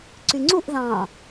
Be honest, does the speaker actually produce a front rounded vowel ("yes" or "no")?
yes